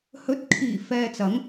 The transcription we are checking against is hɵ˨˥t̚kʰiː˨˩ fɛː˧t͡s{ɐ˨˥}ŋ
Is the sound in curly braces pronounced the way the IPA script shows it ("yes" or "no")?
yes